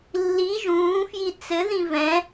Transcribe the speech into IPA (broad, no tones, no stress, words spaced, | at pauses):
lːi ʒũːfji t͡sɘðĩ vɛ̃